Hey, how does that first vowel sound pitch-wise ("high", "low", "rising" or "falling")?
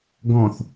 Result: low